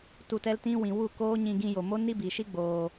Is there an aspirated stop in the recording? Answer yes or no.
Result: no